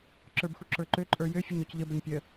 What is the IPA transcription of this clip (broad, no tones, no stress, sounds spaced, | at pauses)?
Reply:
ǁ ə˞ b x u ǁ ə˞ ǃ ø ǃʼ ə˞ j ø fʲ ə ɲ ɔ c ʎ ə b ə ɲ pʲ ə